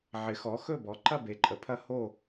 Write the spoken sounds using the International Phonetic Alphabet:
ʕɪ˩˥xɔ˩˥xɵ˥˨bɔ˩˥ ǃɐ˥˨be˩˥ ǃʼə˩˥pʰɐ˧˥ ho˥˨

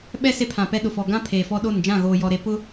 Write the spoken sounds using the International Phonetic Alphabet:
ɓɛ˦ se˦pʰã˨pɛ˦ɗʊ˨ fɔ˨ɡã˦ pʰeː˨fɔ˦ ɗo˦˨n d͡ʒã˦˨ɣoː˨jɔ˨ɾe˨ pʊ˦

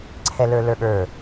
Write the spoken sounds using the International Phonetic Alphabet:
ǀʰɛlə˞lə˞ɠə˞

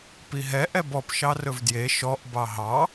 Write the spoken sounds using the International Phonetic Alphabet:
piɦɛ ʔɛbɔp ʃɑrɵvdje ʃɔʔ bɑɦɑ

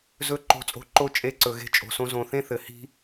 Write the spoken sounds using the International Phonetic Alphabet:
zɵ˦ ǃo̤˦t͡sʼo̤˦ ǃo˦ t͡ʃʼe˦˨ǀɵ˨ɣe̤˦ t͡ʃʼo̤˨sõ˦ zõ˨ θẽ˦θɘ˨hi̤˦

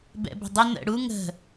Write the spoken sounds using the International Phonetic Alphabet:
bɛ̰bə̤dˤə nə̰ ɽu ŋə̤

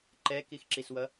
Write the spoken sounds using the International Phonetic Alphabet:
ǃɛkixǁiswʌ

